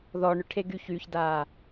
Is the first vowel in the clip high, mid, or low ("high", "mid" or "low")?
mid